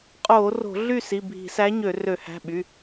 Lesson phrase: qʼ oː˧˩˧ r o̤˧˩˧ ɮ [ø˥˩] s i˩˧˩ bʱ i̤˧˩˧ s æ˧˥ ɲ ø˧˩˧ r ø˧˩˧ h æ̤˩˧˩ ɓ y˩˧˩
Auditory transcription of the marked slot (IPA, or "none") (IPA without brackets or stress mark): y˥˩